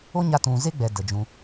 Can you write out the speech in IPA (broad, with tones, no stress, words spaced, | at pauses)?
o˦ɲa˧ tũ˨ze˦ɡ͡bɛ˨ də˨d͡ʒũ˧